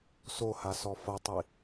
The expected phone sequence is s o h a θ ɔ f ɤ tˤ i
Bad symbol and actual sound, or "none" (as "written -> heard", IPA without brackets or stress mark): θ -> s